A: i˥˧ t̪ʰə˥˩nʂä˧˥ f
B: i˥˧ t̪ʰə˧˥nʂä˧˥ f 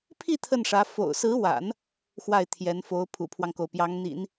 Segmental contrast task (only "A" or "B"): A